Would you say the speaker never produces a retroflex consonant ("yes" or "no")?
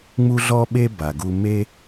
yes